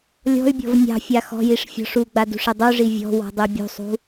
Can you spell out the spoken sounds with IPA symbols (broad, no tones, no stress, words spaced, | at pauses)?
lʲɔ̤y̯bʲɔ̤v nʲɑ̤fʲa xɔ̤jiʂ fʲɔ̤ʂuɡ͡ba dṳʂedˤuʐi vʲɔ̤ wɔ̤dˤebʲṳsˤṳ